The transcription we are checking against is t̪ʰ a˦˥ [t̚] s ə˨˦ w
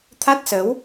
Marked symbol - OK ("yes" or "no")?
yes